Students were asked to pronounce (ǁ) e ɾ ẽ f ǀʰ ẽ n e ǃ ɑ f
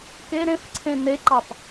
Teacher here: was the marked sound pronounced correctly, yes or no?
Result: no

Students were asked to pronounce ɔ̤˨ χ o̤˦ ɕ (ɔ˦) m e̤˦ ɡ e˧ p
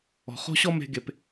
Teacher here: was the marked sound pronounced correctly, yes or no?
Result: yes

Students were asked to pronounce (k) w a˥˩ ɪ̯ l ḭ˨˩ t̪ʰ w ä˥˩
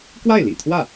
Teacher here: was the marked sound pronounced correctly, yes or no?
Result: yes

